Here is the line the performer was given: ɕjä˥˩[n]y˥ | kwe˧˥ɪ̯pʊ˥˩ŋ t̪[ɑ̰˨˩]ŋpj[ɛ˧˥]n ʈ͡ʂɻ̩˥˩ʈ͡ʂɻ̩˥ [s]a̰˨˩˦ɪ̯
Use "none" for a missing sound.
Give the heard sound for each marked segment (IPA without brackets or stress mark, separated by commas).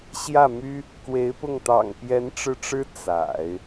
m, ɑ̰˨˩, ɛ˧˥, t͡s